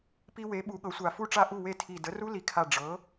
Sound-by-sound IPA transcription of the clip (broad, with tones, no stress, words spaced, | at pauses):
pi˧we˩˥ ɓu˩˥ɠɤ˩˥sʷa˧˩ fu˥˩ʈ͡ʂa˥˩ʔu˥˩we˥˩ tʰi˧˩ də˩˥ru˦˥li˩˥kʰa˧˩ ɖ͡ʐɤ˩˥